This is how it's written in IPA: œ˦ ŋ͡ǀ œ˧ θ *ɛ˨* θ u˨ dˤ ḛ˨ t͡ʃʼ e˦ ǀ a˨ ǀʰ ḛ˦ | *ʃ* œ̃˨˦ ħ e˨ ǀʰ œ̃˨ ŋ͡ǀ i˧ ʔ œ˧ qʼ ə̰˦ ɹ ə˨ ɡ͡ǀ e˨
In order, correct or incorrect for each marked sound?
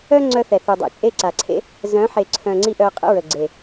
correct, incorrect

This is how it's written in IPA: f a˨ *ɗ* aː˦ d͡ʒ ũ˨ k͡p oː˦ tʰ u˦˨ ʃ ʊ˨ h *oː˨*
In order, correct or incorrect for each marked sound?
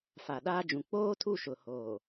correct, correct

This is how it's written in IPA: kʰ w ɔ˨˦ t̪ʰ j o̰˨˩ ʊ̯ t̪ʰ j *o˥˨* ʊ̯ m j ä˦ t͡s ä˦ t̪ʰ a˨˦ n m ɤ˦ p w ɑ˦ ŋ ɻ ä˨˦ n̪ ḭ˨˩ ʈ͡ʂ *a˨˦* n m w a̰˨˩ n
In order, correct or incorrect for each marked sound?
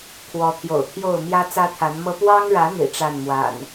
correct, incorrect

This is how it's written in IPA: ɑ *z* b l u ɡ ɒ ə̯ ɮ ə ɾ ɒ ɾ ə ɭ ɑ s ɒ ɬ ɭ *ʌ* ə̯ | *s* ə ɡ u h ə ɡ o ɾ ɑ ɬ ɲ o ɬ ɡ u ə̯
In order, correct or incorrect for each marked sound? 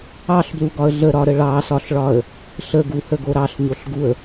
incorrect, incorrect, incorrect

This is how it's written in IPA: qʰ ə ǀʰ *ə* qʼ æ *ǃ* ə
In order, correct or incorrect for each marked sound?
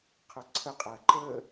correct, correct

